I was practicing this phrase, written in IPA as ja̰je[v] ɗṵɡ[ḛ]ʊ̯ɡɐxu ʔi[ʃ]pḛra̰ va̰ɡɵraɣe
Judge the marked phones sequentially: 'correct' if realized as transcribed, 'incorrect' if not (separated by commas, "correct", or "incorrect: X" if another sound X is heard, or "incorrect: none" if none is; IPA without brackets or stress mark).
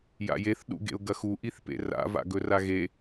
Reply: incorrect: θ, correct, incorrect: θ